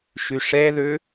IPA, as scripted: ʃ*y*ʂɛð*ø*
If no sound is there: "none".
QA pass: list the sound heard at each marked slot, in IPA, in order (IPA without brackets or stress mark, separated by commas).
y, ø